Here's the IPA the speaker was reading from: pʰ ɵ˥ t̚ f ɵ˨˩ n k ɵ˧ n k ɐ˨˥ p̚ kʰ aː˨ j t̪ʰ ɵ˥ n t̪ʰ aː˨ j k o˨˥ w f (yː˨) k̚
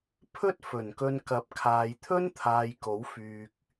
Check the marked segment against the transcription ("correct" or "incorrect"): correct